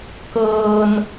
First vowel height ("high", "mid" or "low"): mid